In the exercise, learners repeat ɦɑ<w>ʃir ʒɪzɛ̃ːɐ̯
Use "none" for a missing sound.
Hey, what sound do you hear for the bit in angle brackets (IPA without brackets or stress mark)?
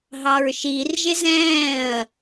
ɹ